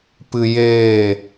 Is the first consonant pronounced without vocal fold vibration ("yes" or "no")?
yes